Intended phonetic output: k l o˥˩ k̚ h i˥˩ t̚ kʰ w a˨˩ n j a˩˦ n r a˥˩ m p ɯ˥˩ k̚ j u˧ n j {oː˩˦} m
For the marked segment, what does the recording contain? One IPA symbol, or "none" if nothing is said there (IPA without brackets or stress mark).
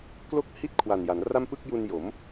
o˩˦